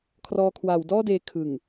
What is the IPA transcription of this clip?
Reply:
kʰ r ɔː˧ kʰ w a˩˦ w d ɔː˥˩ d eː˧ kʰ ɯ˨˩ ŋ

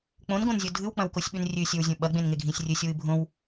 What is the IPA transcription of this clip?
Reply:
k͡p õ n ɡ õ n zʲ o dʱ ɨ w k͡p ɐ̃ w k o sʲ ɓ ʉ n rʲ ʉ sʲ ɵ w zʲ õ ɓ ɐ ɡ͡b ẽ n ŋ e ɡʱ ĩ sʲ rʲ ɨ sʲ w ɨ bʱ õ w

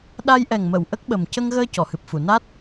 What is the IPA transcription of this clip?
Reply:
ɗ a˧ j ʔ ɛ˨˩ ŋ m ə˨˩˨ w ʔ ə˦˥ k̚ ɓ ə˨˩ m c ə˧ ŋ ɣ əː˧ c ɔ˨˩˨ h ɨ˨˩ p̚ f u˨˩˨ n a˦˥ t̚

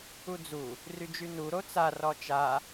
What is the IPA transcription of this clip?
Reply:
u d͡z u | r y d͡ʒ y n u ɾ o t͡s a r ɔ t͡ʃ a

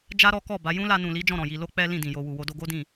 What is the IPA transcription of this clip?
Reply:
d͡ʒ a˦ ɾ ɔ˦ k ɔ˦˨ b a˨˦ j ũ˦ l a˧ n ũ˨ l i˨˦ d͡ʒ ɔ̃˦˨ ɾ ɔ̃˨ j i˧ l o˦ k͡p ɛ˦ l ĩ˦˨ d ĩ˨ j o˧ w u˨ w o˧ d o˧ ɡ o˦ d ĩ˦˨

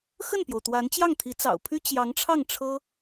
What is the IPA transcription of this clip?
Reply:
x ə˥˩ n p j o˩ ʊ̯ t̪ w a˧˥ n t͡ɕ j ɑ˥˩ ŋ t̪ʰ i˧˥ t͡s ɑ̰˨˩ ʊ̯ pʰ y˥ t͡ɕ j ɑ˧˥ ŋ ʈ͡ʂʰ ɑ˥˩ ŋ ʈ͡ʂʰ ɤ˥

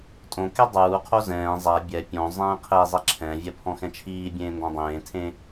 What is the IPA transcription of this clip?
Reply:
tʼ õ k ɛ dˤ uː qʰ o z ɛ̃ː zˤ a bʲ ɛ pʲ õ zˤ ɛ̃ː qʰ e zˤ ɛ ǁʰ ɛ̃ vʲ ɛ pʰ ɔ̃ x ɛ̃ t͡ʃʰ iː bʲ ẽː n d ɔ̃ dˤ ẽː tʰ ẽ

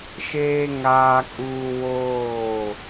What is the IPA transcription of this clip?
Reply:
ʃ eː˦ ŋ aː˦ kʼ uː˦ w oː˦˨

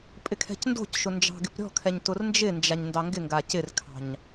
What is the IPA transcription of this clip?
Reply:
pʼ ɪ kʰ ɛ̤ c n d o̤ c ʃ ʊ n d͡ʒ ɑ̤ ɡ ɪ p ɾʲ ɔ̤ kʰ ɛ ɲ t ʊ r n d͡ʒ ɪ n d͡ʒ a ɲ n d ɑ ŋ ɡ ɪ ŋ ɡ a c ɪ r kʰ ɑ̤ ɲ

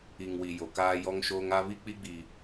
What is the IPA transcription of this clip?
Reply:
i˨ ŋ w i˨ j o˨ k aː˦ j ɔ˦ ŋ ʃ oː˦ ŋ a˦ β i˦ k͡p i˦ ɡ͡b i˨

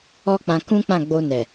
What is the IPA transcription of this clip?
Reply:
ɔ˦ k͡p ã˧ k ũ˦ k͡p ã˦˨ ɡ͡b o˧ n ɛ˨

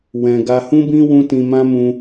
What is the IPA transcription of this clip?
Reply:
w ɛ̃˧ ɡ a˧ h ũ˦ b ĩ˦ w ũ˦ t ĩ˧ m ã˦ m ũ˧

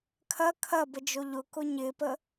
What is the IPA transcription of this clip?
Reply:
kʰ ɐ kʰ ɐ b ə d͡ʒ o ʎ ʊ k ʊ ɲ ɪ p ə

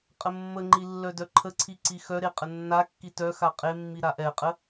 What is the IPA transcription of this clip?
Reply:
qʼ ə mː ə ŋ͡ǃ i lː œ d œ ǃʰ ə ǀʰ i ǀ i x œ ɾ e qʼ ə nː a kː i t œ x a qʼ e mː i ɾ a ʔ ɛ qʼ ə

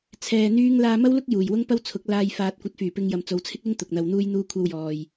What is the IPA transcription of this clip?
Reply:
t͡sʰ ɛː˧ n̪ yː˥ ŋ l aː˧ m ɐ˥ w l ʊ˥ k̚ j uː˨˩ j w ʊ˥ ŋ p ɐ˥ w t͡sʰ ʊ˨˥ k̚ l aː˧ j f aː˨ t̚ kʷ ɐ˨˥ t̚ f yː˨˩ p ɪ˧ ŋ j ɐ˨ m t͡s o˨˧ w t͡sʰ ɪ˥ k̚ l ɪ˥ ŋ t̪ ʊ˨ k̚ n̪ ɐ˧ w n̪ uː˥ j n̪ uː˥ kʷʰ ɐ˥ w j ɔː˧ j

